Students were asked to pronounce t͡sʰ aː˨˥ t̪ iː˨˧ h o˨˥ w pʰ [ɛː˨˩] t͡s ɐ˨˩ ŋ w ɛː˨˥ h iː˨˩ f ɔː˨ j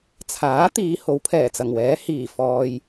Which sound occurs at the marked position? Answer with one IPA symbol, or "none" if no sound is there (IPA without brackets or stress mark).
ɛː˨˩